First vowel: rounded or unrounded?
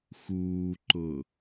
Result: rounded